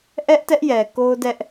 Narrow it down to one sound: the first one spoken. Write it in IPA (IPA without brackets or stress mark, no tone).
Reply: ʔ